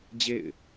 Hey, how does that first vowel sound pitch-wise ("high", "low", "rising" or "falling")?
falling